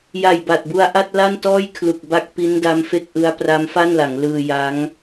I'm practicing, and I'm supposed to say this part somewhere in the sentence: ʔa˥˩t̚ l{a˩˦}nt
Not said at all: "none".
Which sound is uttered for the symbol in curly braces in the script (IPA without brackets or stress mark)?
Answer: a˥˩